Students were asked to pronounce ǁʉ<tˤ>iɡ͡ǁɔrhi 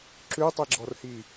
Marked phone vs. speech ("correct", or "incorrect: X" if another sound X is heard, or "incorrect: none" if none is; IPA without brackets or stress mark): correct